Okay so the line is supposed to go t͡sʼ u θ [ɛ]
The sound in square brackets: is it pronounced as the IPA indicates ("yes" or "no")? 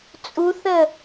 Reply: no